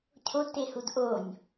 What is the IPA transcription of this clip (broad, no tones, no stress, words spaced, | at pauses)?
cʰodtehud ʔonʲ